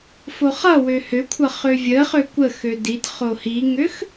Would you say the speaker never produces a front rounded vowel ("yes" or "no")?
no